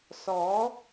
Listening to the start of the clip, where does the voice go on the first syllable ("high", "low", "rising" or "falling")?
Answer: rising